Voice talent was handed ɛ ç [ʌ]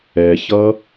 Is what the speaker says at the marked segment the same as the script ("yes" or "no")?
yes